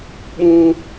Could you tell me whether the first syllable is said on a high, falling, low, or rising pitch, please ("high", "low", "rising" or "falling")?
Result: low